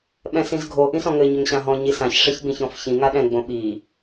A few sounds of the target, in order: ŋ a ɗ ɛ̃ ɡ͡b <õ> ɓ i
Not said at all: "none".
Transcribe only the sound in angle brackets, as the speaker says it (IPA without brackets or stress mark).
õ